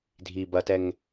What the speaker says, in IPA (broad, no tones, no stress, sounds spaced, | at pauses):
dʱ i b ɐ t ɛ ŋ